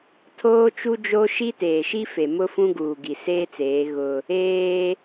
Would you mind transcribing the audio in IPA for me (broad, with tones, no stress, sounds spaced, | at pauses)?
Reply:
tʰ oː˦ t͡ʃ u˦ d͡ʒ o˦ ʃ i˦ t eː˨ ʃ i˦ f e˨ m ʊ˦ f ũ˦ ɡ uː˨ ɡ i˨ s eː˦ t͡s eː˨˦ ɣ ʊ˦ | eː˦